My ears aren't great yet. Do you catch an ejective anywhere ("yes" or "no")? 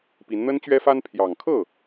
no